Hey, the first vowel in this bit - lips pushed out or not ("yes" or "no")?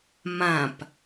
no